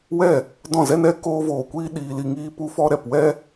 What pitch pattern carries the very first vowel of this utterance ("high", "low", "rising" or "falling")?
falling